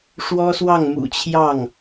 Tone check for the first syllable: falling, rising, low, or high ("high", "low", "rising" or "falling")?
high